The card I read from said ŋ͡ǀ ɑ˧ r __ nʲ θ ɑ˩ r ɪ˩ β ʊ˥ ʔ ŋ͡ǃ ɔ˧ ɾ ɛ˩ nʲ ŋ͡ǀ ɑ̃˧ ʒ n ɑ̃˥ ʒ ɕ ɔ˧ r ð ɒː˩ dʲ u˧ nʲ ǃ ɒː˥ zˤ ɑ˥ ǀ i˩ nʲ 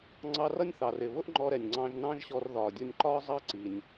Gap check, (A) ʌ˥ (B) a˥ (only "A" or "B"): A